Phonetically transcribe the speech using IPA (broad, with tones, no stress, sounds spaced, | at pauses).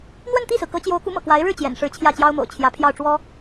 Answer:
n̪ w ə˥˧ n t̪ i˥˩ s ɹ̩˩ k ɤ˧˥ t͡ɕ j o˧˥ ʊ̯ k u˧˥ m ɤ̰˨˩ k w a˧˥ ɪ̯ ɻ ɻ̩˥˩ t͡ɕ j ɛ̰˨˩ n ʂ ɻ̩˧˥ t͡ɕʰ j ä˥˩ t͡ɕ j ɑ˥ ʊ̯ m o̰˨˩ ʊ̯ t͡ɕʰ j ä˧˥ pʰ j ɑ˥˩ ʊ̯ ʈ͡ʂ w ɔ˥